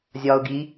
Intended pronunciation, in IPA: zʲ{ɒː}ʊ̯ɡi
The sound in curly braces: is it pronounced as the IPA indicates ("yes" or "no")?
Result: yes